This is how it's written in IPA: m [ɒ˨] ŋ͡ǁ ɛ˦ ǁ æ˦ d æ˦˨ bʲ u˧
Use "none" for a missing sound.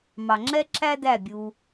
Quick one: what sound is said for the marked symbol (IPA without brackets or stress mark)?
ɑ˨